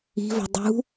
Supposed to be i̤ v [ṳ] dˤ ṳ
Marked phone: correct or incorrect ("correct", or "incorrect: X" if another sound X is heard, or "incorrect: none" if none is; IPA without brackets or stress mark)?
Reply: incorrect: o̤